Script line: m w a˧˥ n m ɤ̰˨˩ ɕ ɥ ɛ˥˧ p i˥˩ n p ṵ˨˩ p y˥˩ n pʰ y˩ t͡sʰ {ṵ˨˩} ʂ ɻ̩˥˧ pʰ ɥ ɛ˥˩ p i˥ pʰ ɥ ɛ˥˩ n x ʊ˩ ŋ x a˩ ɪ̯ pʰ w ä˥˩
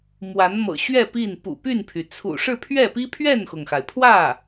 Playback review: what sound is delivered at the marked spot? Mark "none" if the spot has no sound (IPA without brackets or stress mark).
ṵ˨˩